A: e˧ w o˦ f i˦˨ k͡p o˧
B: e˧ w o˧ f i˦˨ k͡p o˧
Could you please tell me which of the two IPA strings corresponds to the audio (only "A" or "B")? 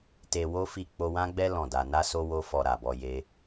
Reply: A